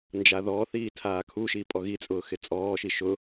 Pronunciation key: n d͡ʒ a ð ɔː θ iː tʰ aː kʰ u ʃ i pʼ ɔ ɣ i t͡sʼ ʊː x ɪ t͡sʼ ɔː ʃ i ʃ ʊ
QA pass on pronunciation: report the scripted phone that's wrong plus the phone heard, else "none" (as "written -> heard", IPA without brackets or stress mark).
none